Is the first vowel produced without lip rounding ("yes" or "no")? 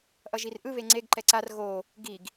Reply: yes